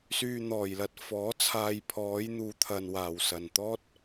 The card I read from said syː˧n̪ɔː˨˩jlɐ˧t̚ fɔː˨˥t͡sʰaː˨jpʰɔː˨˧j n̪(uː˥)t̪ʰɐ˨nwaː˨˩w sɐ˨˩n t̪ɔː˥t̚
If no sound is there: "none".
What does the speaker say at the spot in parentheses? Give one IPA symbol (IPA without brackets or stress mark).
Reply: uː˨